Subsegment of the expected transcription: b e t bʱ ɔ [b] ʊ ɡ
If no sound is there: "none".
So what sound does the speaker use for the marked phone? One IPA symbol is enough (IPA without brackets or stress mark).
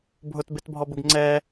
b